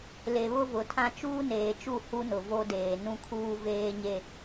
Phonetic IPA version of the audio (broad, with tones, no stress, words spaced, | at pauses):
le˨βʊ˦vʊ˨tʰã˦ t͡ʃuː˦neː˨t͡ʃu˦˨ hu˦nʊ˨vo˦ deː˨nũ˦kʰuː˦ veː˦ɲe˦